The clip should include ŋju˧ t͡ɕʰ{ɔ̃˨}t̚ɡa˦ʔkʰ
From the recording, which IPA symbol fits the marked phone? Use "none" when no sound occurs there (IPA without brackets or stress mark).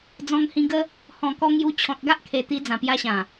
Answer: ɔ̃˨